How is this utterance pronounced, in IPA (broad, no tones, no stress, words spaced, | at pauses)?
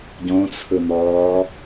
ɟõt͡sʰɯn̪ɔː